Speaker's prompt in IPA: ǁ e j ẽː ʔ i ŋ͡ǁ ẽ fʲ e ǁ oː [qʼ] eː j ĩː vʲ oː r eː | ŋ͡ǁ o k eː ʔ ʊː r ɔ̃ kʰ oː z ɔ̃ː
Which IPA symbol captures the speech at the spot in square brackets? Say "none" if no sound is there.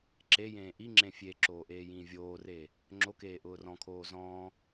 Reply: ʔ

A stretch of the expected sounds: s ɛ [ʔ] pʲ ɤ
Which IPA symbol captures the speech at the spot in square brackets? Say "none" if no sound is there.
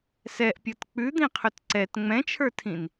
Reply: ʔ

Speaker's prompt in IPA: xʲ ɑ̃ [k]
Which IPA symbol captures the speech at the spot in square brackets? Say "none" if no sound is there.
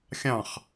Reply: χ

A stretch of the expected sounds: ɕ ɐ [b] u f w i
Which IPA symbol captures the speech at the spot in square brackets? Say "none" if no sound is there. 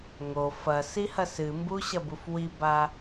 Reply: b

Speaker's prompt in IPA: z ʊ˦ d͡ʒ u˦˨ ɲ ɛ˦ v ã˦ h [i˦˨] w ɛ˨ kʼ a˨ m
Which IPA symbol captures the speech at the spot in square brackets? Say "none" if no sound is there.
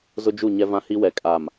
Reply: i˦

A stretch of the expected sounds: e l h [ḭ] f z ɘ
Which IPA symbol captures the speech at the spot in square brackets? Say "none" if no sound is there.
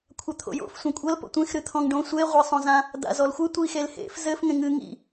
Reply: ḛ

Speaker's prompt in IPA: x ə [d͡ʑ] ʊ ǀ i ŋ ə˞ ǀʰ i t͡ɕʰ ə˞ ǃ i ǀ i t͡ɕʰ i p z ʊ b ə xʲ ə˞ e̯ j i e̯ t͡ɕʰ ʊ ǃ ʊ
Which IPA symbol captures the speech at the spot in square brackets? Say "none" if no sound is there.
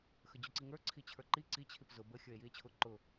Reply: d͡ʑ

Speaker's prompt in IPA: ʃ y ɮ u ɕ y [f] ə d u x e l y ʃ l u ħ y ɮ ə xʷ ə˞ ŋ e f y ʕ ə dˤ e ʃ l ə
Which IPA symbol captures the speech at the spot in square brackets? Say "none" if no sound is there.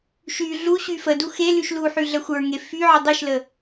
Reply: f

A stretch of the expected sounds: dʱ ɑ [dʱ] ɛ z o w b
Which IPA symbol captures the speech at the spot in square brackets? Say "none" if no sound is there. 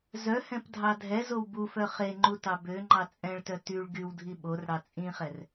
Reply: dʱ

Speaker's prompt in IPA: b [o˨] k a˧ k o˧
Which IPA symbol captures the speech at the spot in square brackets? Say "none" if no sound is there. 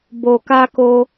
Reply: o˨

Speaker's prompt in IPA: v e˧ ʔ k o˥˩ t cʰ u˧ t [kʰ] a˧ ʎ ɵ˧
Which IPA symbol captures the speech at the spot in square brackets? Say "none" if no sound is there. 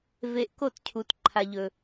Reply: ǃʰ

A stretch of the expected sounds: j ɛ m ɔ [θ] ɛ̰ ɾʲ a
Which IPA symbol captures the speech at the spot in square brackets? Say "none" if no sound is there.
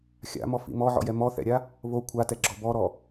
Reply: θ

